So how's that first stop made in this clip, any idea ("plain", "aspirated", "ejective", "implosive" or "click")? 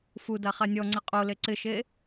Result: plain